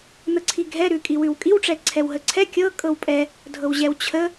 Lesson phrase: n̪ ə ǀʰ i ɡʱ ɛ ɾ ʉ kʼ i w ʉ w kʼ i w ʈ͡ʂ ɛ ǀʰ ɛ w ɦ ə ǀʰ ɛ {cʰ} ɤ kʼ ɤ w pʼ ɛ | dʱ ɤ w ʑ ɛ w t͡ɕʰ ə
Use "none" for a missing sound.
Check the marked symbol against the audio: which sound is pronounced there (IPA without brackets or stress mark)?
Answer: kʲ